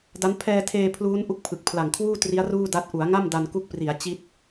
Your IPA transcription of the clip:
d a˦˥ n pʰ ɛː˧ tʰ eː˧ pʰ l uː˦˥ n ʔ u˥˩ k̚ pʰ ɯ˨˩ k̚ pʰ l a˨˩ ŋ kʰ w uː˥˩ t r i˦˥ a̯ r uː˥˩ d a˦˥ t̚ ʔ u˩˦ a̯ ŋ a˥˩ m d a˧ n k u˦˥ k̚ p r i˩˦ a̯ t͡ɕ i˦˥ t̚

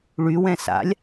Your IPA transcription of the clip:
ɭ y w ɛ̃ s a̰ lʲ

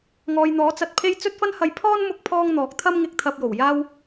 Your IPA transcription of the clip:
ŋ ɔː˨ j n̪ ɔː˨˥ t͡s ɐ˧ t̚ pʰ e˥ j t͡s ɵ˥ t̚ f ɐ˥ n h ɐ˧ j pʰ ɔː˥ n m ʊ˥ k̚ pʰ ɔː˥ ŋ n̪ ɔː˨˥ k̚ t̪ʰ ɐ˥ m ŋ ɪ˧ k̚ t̪ʰ ɐ˧ p̚ j o˨˩ w j aː˥ w

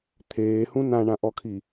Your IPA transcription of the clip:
t̪ʰ eː h ũ n ã ɳ ã ʔ ɔ kʰ i

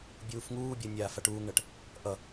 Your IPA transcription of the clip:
bʲ uː f ŋ uː bʲ ɜ nʲ aː f a ʈ uː ŋ ɳ ɜ ʈ | ʔ ʌ

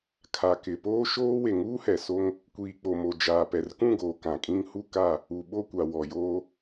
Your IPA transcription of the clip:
kʰ a˨ k ɪ˨ p oː˦ ʃ oː˦ w e˨ ŋ uː˦ h ɛ˨ s o˦ ŋ | kʷ iː˨ k͡p o˨ m o˨ d͡ʒ aː˨ p ɛ˨ r k ũ˦˨ ɡ oː˨ k ã˨ kʼ ĩ˦ ŋ h u˦ k a˦˨ | u˨ ɓ o˦˨ kʷ a˨ w ɔ˨ j oː˦

